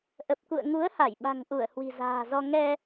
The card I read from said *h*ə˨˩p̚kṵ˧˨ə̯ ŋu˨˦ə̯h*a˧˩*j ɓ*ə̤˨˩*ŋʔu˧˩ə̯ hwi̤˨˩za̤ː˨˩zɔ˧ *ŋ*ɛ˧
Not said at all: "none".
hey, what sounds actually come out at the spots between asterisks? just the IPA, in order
ʔ, a˧˩, a̤˨˩, ŋ

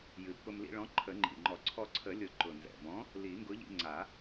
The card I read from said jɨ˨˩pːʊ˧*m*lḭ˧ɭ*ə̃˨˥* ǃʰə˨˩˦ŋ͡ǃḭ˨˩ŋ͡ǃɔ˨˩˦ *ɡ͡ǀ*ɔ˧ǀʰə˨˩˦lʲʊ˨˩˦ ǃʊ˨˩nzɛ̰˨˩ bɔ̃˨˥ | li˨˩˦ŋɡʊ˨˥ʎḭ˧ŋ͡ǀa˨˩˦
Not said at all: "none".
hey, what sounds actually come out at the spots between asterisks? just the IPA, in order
m, ɔ̃˨˥, ǀʰ

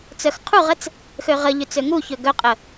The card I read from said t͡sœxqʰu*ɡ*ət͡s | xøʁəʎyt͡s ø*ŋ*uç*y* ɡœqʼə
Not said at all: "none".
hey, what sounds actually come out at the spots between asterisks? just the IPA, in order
ʁ, ŋ, ø

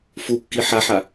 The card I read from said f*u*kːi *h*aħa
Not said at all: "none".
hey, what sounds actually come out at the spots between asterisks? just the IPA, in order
u, ħ

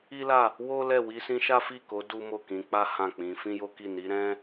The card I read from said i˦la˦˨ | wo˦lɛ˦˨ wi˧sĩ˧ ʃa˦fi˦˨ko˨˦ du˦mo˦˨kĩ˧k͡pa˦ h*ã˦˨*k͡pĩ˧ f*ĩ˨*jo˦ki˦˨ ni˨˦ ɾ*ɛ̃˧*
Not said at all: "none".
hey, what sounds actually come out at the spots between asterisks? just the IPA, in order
ã˦˨, ĩ˦, ɛ̃˦

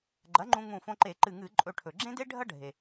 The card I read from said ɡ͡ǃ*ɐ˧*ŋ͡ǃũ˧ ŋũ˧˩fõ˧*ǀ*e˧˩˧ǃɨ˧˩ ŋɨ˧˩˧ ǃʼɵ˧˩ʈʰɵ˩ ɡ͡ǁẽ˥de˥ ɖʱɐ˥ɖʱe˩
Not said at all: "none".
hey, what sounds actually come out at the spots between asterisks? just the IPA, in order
ɐ˩˥, ǃ

